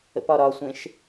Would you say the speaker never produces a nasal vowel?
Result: no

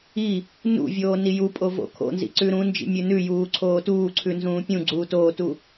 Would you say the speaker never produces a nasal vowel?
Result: no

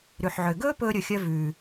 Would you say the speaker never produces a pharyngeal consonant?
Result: no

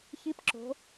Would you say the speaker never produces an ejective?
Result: yes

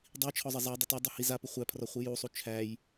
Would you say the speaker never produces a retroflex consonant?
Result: yes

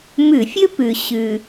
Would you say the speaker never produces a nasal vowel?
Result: yes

